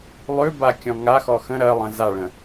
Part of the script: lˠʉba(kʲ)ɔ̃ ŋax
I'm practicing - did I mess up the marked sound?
no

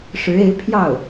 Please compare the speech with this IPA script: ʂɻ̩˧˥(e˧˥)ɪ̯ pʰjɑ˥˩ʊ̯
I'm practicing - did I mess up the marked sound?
no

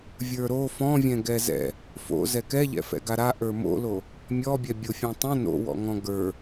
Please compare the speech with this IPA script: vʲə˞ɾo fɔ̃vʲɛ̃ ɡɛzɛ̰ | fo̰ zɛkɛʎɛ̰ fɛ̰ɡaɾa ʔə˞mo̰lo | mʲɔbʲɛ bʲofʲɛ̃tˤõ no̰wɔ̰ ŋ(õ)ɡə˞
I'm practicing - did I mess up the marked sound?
yes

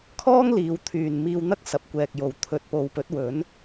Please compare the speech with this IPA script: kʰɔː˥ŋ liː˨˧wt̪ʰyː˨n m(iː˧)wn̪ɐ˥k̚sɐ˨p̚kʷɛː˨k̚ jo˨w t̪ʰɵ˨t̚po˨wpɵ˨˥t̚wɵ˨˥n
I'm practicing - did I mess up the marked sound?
no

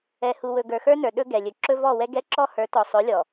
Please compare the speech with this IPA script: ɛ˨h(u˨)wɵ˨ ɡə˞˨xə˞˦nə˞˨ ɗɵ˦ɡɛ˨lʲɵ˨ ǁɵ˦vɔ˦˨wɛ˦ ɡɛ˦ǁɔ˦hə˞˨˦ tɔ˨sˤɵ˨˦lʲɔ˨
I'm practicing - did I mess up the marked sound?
no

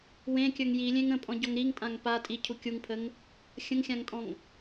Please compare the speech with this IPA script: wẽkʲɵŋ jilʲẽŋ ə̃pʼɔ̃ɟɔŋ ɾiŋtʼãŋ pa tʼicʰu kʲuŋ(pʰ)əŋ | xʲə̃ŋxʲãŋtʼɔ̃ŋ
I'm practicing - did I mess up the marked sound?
no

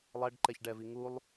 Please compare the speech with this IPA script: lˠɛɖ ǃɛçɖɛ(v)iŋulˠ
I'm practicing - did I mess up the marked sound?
no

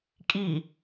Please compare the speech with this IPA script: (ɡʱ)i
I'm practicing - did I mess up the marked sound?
yes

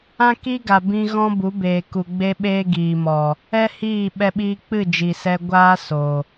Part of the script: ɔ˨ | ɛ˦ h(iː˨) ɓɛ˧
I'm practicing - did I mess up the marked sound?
yes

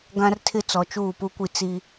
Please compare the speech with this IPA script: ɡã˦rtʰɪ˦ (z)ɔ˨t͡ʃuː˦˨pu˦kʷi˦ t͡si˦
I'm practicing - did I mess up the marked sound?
yes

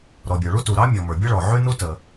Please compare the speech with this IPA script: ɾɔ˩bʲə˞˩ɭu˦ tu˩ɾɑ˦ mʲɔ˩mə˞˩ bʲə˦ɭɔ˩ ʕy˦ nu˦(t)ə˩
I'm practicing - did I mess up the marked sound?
no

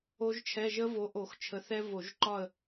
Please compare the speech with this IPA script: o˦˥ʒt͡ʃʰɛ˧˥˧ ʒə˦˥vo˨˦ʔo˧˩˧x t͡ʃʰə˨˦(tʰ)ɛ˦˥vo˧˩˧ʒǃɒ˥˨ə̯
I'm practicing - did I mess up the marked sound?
yes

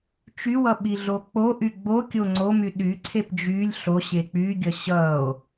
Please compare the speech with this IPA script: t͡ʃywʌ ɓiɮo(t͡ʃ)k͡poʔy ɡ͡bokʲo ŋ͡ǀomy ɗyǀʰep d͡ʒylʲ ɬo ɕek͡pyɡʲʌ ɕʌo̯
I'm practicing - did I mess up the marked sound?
yes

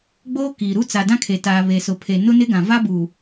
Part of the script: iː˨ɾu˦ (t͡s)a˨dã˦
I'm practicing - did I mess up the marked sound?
no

